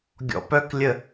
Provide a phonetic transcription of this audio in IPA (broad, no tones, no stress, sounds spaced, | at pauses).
ɡʲ ɔ̰ p œ k lʲ ə